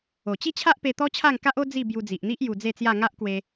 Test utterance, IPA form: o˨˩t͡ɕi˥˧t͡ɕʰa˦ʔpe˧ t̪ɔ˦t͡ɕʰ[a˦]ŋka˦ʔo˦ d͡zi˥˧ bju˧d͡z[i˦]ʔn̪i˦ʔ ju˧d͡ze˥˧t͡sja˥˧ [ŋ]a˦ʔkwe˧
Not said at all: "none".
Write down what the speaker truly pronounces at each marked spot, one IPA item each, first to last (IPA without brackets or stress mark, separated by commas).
a˥˧, i˨, ŋ